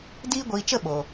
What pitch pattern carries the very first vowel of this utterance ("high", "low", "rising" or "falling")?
high